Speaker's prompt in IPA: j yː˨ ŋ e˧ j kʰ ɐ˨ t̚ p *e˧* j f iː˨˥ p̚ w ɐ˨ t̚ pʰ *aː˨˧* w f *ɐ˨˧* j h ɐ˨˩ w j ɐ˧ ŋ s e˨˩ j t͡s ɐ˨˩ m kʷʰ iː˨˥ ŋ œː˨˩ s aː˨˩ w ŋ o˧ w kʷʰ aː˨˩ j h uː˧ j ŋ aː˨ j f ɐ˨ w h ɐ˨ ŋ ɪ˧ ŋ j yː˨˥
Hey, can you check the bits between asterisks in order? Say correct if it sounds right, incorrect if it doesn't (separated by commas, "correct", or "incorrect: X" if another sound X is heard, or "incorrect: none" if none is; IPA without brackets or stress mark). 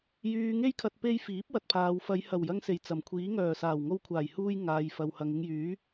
correct, incorrect: aː˨, correct